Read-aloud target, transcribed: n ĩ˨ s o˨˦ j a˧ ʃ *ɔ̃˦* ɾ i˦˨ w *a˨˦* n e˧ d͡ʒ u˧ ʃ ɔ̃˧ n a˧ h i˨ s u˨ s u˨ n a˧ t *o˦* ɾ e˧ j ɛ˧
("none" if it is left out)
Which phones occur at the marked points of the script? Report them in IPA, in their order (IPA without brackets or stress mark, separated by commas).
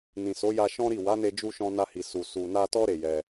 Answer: ɔ̃˦, a˨˦, ɔ˦